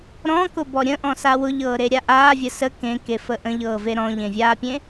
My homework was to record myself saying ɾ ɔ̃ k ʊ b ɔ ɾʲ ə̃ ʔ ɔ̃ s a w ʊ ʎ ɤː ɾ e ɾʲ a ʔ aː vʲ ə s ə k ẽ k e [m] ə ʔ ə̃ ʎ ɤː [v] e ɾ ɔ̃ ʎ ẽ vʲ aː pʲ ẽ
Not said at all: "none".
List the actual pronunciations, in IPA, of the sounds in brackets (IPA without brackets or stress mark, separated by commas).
f, v